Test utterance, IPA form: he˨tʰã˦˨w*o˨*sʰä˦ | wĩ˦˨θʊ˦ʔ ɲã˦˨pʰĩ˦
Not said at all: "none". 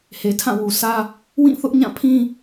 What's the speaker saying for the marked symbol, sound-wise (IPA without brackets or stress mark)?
u˨